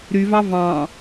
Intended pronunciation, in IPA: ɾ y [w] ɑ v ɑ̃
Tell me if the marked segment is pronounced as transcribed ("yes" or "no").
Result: no